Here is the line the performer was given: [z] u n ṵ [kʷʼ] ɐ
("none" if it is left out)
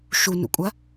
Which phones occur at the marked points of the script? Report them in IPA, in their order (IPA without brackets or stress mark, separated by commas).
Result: ʃ, kʷʼ